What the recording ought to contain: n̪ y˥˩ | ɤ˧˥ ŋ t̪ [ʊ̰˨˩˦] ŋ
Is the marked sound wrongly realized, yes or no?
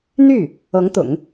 no